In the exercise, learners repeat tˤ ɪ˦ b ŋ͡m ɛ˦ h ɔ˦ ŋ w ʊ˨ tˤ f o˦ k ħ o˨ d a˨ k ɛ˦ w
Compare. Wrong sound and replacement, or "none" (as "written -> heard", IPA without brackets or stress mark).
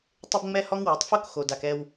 ħ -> x